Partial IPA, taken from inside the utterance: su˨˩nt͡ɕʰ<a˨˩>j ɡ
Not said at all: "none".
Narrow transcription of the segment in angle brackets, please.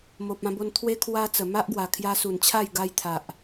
a˥˧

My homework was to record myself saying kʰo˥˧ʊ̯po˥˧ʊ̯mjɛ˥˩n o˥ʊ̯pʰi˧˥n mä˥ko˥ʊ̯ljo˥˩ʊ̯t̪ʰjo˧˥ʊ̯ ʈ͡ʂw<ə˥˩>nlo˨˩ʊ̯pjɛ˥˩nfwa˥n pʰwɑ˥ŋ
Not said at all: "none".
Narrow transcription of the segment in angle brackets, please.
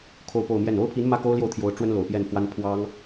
ə˥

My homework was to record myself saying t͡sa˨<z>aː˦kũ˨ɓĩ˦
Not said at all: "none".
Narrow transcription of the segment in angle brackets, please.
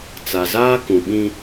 z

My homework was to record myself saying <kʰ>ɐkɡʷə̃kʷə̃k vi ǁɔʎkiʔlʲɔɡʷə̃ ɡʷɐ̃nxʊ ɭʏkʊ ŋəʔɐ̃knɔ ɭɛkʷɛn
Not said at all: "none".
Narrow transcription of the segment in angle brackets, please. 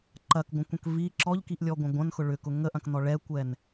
ǃ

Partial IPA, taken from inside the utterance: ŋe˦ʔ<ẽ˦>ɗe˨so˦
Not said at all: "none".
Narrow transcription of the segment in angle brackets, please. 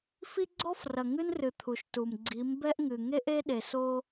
e˦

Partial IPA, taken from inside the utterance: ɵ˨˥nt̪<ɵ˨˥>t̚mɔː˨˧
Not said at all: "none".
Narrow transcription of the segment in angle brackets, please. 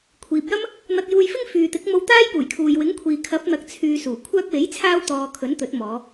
ɵ˨˥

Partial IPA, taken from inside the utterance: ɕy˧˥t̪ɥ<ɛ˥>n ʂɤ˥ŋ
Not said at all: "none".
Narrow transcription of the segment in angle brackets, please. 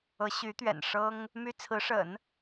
ɛ̰˨˩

